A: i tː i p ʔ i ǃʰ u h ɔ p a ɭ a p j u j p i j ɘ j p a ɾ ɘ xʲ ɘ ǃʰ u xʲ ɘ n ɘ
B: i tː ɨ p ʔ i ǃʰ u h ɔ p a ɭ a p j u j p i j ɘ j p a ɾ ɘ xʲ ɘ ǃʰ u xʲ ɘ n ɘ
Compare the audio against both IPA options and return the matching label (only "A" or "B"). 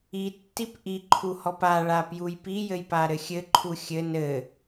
A